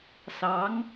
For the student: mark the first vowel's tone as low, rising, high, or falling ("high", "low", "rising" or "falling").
rising